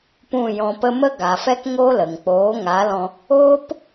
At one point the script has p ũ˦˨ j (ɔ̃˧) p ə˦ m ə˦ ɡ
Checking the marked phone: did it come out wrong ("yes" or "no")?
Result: no